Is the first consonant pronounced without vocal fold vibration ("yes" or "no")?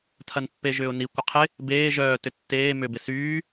yes